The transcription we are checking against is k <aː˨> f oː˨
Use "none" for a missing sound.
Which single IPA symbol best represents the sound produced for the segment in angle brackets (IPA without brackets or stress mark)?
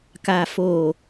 aː˨